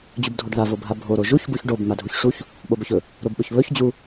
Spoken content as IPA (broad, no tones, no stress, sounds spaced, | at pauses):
d͡ʑ u b dʱ o ɖ ð a v o bʱ a bʱ o ɾ o ʒ u ç b u ç ɖ o b m a dʱ u ç ʂ u ç | ɓ o b ɵ ç ɵ | ɾ o b ɓ ɵ ç β ɵ ç d͡ʑ u